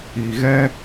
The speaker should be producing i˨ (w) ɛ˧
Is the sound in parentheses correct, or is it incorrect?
incorrect